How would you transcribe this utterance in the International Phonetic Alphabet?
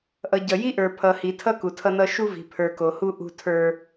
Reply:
ʔ ʌ˨ ɟ ʌ˨ j i˦ ʔ ə˞˨ pʰ ʌ˨ h i˨ tʰ ʌ˦ k u˨ tʰ ʌ˦ n ʌ˦ ʃ u˦ v i̤˨ pʰ ə˞˨ k o˨ h u˦ ʔ ṳ˦ tʰ ə˞˦

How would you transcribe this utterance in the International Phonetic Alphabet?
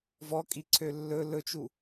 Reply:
v ɔ kʼ i ǀʰ ø lː ɵ l ɵ t͡ʃ u

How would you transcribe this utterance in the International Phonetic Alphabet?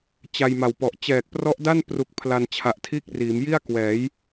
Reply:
t͡ɕ a˧ j m a˨˩ w p ɔ˨˩ ʔ t͡ɕ ɛː˨˩ k̚ p r ɔ˦˥ ʔ d a˥˩ n p r u˨˩ k̚ pʰ l a˧ n t͡ɕʰ a˨˩ ʔ tʰ iː˥˩ k̚ r iː˩˦ m j i˥˩ a̯ k w ɛː˩˦ j

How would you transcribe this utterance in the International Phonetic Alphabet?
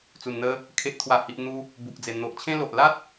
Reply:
t͡s u˨˩ n n̪ ə˧ | kʰ e˨ ʔ t̪ʰ w a˨˩ h i˨ ʔ n̪ u˧ | b u˨ k̚ d͡z e˨˩ n̪ o˨ ʔ t͡ɕʰ ẽ˦ l o˨ ʔ l a˦ t̚

